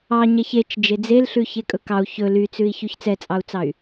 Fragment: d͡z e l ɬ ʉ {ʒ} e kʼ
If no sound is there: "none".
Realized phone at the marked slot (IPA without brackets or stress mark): ç